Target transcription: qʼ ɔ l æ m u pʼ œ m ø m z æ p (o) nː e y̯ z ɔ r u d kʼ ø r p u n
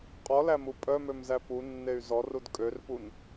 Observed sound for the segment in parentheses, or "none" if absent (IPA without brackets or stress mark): u